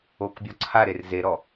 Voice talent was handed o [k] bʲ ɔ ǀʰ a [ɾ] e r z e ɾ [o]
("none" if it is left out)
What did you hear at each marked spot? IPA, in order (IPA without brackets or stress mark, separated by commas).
k, ɾ, ɔ